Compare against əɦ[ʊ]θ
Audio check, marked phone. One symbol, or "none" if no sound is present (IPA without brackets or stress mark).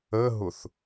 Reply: ʊ